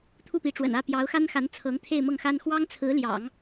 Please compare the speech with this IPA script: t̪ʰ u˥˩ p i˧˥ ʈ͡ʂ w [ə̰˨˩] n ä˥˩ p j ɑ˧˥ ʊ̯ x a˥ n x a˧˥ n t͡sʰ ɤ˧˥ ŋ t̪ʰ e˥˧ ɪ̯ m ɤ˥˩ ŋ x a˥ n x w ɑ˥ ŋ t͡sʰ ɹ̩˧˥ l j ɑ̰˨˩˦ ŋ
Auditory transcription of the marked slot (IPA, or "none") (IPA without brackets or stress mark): ə̰˨˩